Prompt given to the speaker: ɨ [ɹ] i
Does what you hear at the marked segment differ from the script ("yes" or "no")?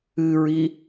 no